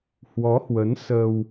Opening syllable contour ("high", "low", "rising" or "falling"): rising